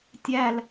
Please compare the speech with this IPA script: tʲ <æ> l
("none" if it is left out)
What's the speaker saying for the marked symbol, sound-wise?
æ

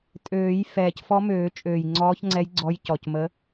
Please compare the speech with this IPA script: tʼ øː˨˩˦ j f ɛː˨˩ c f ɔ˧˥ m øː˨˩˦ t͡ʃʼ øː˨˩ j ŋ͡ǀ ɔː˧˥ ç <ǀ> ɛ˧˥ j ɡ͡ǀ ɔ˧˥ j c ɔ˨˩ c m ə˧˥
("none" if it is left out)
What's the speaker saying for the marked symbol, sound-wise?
ŋ͡ǀ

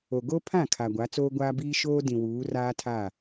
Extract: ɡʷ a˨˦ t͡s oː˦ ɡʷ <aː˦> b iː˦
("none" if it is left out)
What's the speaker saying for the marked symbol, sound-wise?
aː˦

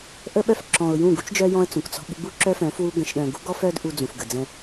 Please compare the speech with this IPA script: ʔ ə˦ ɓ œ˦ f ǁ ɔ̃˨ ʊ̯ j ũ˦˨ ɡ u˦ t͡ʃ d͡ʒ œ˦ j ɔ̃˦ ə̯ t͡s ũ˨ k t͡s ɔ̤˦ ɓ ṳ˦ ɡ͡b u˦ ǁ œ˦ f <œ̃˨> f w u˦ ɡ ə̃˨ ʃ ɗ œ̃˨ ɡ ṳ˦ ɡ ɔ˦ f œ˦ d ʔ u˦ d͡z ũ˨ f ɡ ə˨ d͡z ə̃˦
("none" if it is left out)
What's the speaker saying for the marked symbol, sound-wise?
œ̃˨˦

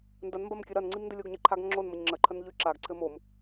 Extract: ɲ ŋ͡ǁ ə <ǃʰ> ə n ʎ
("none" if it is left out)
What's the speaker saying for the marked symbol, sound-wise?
ǃʰ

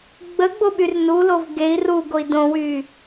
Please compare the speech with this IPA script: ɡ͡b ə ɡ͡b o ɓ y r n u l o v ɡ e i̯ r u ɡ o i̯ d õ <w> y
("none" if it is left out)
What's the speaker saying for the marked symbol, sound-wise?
w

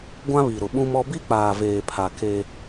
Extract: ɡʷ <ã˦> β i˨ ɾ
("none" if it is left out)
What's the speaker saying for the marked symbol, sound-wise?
ã˦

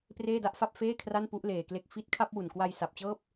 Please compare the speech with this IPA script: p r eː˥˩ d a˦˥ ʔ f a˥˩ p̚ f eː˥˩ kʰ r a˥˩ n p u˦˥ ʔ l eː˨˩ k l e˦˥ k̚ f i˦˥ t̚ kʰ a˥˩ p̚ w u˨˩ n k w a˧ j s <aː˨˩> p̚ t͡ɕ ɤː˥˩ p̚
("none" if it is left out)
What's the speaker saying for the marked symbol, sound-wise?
a˨˩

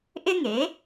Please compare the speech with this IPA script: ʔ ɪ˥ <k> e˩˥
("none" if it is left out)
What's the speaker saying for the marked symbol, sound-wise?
ŋ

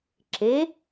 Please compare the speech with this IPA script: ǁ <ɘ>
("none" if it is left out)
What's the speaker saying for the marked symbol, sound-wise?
e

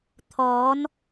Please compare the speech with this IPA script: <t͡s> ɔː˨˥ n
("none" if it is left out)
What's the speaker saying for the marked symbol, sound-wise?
t̪ʰ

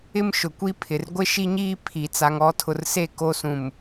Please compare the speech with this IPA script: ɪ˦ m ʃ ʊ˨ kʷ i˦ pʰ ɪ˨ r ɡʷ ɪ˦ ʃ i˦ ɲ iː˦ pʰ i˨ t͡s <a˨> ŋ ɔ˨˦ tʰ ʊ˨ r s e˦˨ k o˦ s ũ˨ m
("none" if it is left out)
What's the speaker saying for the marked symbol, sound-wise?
a˨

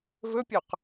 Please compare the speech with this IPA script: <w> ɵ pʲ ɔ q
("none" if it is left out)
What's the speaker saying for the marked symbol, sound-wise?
v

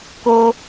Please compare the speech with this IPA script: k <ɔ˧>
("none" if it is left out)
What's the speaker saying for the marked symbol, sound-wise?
o˧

